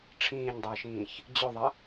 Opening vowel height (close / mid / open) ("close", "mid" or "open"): close